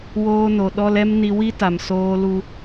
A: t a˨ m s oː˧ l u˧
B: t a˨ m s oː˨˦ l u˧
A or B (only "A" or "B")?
A